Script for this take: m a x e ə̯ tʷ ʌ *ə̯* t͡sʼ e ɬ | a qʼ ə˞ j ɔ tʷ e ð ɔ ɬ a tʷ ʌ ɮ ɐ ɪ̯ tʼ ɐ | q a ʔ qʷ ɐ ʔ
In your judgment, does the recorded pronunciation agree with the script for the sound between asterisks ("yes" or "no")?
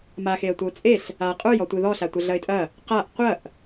no